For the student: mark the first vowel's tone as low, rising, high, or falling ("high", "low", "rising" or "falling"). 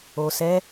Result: low